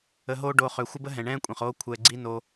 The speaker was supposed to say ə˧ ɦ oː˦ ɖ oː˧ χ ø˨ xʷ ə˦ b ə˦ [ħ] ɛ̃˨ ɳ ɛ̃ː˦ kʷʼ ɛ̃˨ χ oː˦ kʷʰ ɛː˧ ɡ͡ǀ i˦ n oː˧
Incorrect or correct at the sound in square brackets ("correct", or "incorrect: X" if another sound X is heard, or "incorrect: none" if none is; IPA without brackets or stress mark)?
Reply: incorrect: ɦ